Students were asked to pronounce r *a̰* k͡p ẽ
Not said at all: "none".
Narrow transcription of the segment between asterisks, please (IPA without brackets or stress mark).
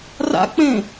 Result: a̰